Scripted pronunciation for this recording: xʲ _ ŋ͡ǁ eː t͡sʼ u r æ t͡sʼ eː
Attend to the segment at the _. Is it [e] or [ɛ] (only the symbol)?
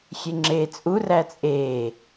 e